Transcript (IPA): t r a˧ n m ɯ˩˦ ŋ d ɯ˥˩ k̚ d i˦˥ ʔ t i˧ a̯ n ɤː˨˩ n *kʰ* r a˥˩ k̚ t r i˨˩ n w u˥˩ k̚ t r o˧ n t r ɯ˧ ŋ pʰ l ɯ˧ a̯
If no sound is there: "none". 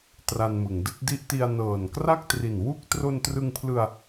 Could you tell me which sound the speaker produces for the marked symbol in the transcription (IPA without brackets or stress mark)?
k